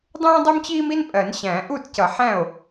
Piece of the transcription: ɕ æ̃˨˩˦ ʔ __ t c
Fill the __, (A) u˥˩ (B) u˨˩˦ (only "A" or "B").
A